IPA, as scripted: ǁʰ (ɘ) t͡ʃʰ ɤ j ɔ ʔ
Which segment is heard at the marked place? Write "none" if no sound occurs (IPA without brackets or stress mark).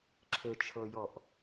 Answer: ɘ